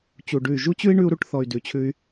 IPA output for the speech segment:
t͡ɕ u˧ ɖ ʉ˦˨ y̯ ʒ u˦ t͡ɕ ʉ˦ i̯ ɳ ʉ˦ u̯ ɾ u˦ ʈ θ ɔ˧ y̯ d ʉ˧ t͡ɕʰ ʉ˦ y̯

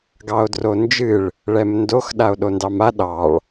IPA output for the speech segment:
ɡ ɑ o̯ d r o n d͡ʒ ɨ ɭ | ɭ ɛ m n d o x ɗ a o̯ ɗ o n d ɑ m a ɗ ɑ ɭ

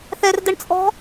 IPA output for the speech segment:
θ ɛ r d ə ɳ t͡sʼ ɔ̤

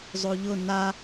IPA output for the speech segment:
zˤ o ʎ ʊ n a

